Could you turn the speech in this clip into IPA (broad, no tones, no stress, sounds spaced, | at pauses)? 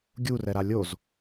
ɡʲ u r ɛ ɾ a lʲ o z